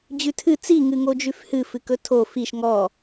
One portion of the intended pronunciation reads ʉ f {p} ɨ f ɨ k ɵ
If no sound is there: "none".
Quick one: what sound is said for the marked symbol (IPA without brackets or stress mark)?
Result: h